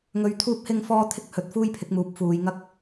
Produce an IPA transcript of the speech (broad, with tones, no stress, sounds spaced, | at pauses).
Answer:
ŋ ɵ˧ ɥ t̪ʰ uː˥ p̚ h ɪ˥ ŋ f ɔː˥ t̪ʰ ɪ˥ k̚ h ɵ˨ t̚ f uː˥ j pʰ ɪ˨˥ k̚ m uː˨˥ p̚ f uː˨˧ j ŋ ɐ˥ k̚